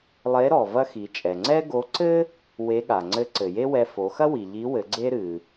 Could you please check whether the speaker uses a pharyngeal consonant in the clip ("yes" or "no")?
no